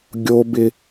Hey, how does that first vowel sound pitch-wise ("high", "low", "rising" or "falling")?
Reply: high